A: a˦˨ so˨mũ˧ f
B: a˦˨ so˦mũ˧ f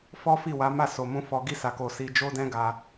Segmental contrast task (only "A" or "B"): A